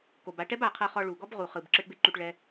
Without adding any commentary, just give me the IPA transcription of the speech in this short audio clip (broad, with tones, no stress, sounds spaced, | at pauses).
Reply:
k o˨ b a˧ ʈ ɛ˦ b a˨ qʰ ɤ˧ χ ɔ˧ ɭ u˨ ɡ ɔ˦ b ʁ u˨ χ ɯ˨ b ǁ ɯ˧ ʈ b e˦ ǃ u˧ ʈ ɭ ɛ˦